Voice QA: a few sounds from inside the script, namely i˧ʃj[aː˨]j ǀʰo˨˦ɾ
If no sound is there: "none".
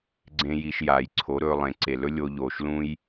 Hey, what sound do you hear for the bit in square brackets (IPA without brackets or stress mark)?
aː˨